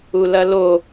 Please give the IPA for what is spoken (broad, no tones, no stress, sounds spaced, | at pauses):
u l ɐ l o